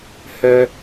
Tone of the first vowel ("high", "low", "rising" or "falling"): high